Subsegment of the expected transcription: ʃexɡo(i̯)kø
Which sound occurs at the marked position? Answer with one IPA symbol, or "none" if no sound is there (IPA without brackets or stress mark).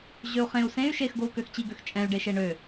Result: u̯